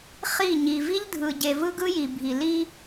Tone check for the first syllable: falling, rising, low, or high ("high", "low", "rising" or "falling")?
falling